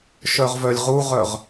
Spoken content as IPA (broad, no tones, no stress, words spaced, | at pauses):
ʃœʁvœlʲʁuʁœʁ